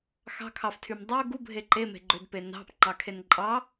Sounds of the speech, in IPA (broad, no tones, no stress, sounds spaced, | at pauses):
x ɑ̤ kʰ ɑ f tʰ y m dˤ o ɡ u bʱ e ǃ e m e̤ ɡ͡ǃ ø d p e n ɑ̤ p ŋ͡ǃ ɑ kʰ e n ǃʼ ɑ